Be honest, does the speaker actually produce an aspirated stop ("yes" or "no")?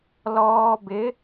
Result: no